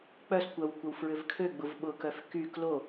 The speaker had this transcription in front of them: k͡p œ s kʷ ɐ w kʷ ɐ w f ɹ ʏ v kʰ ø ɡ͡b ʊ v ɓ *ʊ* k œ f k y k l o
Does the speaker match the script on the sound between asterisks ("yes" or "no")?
yes